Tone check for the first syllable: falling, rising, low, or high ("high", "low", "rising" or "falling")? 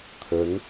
rising